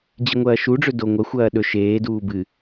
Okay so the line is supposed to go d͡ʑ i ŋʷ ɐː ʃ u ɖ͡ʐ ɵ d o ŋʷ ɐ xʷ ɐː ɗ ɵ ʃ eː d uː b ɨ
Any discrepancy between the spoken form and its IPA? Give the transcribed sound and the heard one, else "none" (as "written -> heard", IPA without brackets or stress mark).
none